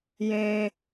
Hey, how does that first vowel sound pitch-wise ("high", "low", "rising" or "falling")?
high